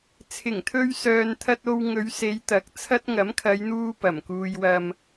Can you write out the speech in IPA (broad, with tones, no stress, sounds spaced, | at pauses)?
t͡sʰ ɪ˨˩ ŋ t̪ʰ ɵ˧ ɥ s œː˨ n t̪ʰ ɐ˧ t̚ o˧ w ŋ ɵ˨˧ ɥ s e˨˧ j t̪ ɐ˨˥ k̚ t͡sʰ ɐ˥ t̚ ŋ ɐ˨˥ m kʰ ɐ˨˧ j n̪ uː˧ p ɐ˨˩ m k uː˧ j w ɐ˧ m